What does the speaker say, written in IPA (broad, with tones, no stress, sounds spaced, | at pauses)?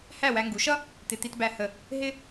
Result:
h æ˥˩ w æ˧ ŋ ɡ u˩˥ ʃ ʌ˥ | t̪ ɪ˧ t̪ i˧ t b æ˧ h ə˥˩ | ɦ ɪ˥